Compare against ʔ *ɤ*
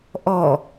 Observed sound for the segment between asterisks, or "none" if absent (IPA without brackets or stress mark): ɔ